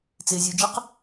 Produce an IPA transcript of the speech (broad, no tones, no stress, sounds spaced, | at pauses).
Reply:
t͡s ɪ zʲ u d͡ʒ ɪ q